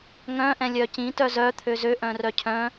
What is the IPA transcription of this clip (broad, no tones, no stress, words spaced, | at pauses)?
ŋœ̃ ʔɛ̃lʲœcĩ tœzœ t̪ʰøzø ʔœ̃rœcʰœ̃